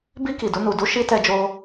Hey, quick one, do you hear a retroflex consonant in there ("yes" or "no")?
no